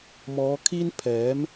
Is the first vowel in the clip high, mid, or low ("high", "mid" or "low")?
mid